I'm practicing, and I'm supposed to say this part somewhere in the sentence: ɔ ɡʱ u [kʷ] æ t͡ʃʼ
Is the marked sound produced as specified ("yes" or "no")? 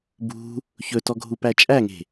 no